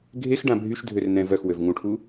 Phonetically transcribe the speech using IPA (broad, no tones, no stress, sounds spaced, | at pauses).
ɡʱ e x ɖ ã bʱ y ʃ dʱ ø r n ɛ̃ v œ x w ø v ŋ ũ ʈʰ u